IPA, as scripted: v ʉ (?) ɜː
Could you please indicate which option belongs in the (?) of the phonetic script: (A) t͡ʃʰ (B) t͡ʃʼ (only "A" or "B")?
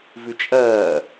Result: B